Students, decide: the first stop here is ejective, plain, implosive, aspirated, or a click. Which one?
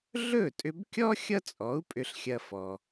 ejective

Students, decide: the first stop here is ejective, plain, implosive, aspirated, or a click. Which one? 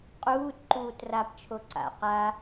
ejective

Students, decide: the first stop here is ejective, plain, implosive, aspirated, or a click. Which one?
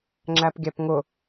click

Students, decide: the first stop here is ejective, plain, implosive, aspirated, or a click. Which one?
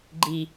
click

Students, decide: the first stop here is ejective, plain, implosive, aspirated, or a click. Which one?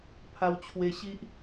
aspirated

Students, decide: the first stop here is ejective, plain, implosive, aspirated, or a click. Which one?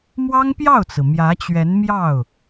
plain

